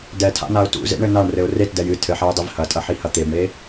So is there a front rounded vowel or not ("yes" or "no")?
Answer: no